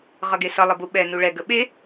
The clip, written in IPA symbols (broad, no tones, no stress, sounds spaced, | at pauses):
ʁ ʌ ɡ e s ʌ lˠ ə b u ɓ ɛ n u ɭ ɛ ɡ ə ɓ e